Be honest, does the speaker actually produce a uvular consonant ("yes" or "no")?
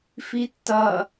no